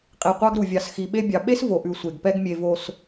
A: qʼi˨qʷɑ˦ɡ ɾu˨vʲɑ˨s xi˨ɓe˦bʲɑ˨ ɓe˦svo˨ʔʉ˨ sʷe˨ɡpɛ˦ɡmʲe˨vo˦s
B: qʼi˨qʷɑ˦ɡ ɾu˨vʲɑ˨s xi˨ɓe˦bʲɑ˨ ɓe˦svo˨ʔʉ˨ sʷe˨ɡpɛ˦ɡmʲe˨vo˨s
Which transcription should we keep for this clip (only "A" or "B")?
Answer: B